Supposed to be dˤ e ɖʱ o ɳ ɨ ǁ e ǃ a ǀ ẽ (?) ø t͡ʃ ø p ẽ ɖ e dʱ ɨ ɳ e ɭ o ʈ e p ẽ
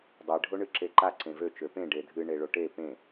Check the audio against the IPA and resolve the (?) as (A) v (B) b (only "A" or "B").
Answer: A